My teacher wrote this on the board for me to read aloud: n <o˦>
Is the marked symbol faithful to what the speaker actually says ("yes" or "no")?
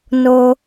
yes